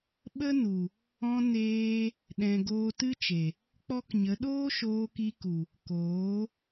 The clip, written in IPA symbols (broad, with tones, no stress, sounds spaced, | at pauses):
ɓ ə˦ n u˨ | ɔ̃˧ n eː˧ | ɗ ɛ̃˨ ɡ oː˧ t ɨ˦ t͡ʃ e˨ | k͡p ɔ˦ k ɲ ə˨˦ ɗ oː˦ ʃ oː˧ k i˧ k u˨ | k oː˨˦